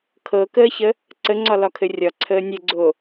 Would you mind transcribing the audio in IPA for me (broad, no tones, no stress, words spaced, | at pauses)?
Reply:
kʰɤkəːçə | ǀəŋ͡ǀɒ lɒkʰɘrʲɒ ǀʰəːnʲɘɡ͡ǀo